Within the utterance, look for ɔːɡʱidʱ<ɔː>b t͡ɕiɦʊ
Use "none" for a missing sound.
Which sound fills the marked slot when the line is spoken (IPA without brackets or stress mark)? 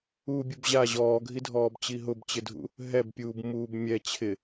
ɔː